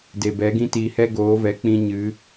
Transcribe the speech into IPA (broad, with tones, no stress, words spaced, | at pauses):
de˨bɛ˨˦ɡĩ˦tiː˧ hɛ˦ɡoː˨˦vɛ˨˦k͡pĩ˧ ɲɨ˨˦